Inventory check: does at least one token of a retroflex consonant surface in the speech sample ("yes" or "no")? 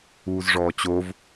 yes